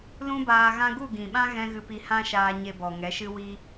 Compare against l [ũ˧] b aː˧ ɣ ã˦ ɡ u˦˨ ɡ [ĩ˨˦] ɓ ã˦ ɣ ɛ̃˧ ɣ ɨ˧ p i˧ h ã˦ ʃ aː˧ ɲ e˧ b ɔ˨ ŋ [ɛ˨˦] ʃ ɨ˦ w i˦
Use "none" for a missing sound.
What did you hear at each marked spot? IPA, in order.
ũ˦, ĩ˨, ɛ˨˦

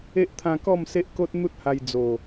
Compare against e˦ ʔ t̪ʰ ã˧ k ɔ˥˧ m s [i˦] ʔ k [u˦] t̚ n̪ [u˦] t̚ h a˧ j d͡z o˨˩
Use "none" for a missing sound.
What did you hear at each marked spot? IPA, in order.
e˦, o˦, u˦

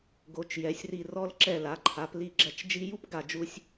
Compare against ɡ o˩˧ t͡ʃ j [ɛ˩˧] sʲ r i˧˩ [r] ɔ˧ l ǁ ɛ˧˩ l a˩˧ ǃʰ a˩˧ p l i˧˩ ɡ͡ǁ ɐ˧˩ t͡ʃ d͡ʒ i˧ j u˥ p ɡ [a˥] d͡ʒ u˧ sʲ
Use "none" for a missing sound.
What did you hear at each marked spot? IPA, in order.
ɛ˩˧, r, a˧˩

